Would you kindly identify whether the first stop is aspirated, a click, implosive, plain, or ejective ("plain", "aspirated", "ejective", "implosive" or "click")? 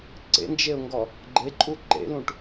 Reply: click